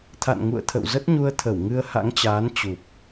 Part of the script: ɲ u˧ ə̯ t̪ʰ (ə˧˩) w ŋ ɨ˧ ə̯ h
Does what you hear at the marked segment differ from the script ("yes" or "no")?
no